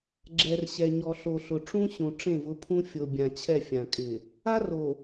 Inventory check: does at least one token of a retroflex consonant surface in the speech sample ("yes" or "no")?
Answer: yes